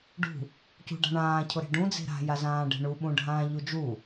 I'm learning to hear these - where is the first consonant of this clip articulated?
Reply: retroflex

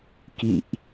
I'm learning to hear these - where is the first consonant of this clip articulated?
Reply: velum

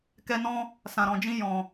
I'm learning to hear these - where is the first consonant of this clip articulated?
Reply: velum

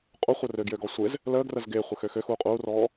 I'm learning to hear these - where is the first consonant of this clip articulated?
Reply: uvula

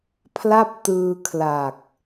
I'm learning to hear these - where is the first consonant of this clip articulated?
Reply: lips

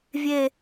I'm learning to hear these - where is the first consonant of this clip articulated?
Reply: lips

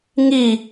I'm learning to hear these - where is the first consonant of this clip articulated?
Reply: velum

